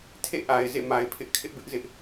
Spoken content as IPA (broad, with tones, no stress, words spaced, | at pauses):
tʰḛ˦˨ʔa˨ɪ̯ zḛ˦˨ma˨ɪ̯pʰɪ˦ʔ kʰɪ˦ʔbɪ˦ʔzɪ˦ʔ